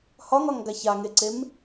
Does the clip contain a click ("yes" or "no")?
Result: yes